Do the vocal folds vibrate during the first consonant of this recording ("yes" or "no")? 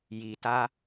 yes